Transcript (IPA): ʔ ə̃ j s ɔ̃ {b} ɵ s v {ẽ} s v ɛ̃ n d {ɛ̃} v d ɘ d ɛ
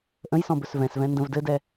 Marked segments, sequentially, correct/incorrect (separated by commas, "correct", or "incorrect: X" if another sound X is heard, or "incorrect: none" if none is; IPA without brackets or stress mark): correct, incorrect: ɛ̃, incorrect: ə̃